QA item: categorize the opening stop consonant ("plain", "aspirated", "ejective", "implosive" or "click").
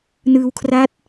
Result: aspirated